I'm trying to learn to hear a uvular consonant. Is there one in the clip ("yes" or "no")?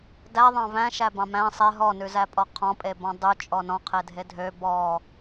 yes